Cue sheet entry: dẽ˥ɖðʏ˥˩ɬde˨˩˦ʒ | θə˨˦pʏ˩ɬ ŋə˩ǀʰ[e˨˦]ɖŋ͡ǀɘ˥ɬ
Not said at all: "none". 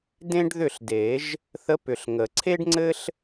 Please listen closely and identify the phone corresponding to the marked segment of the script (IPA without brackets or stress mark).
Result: e˥